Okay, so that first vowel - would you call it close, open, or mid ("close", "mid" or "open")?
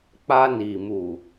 open